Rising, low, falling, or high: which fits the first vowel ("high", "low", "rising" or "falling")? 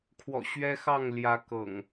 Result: low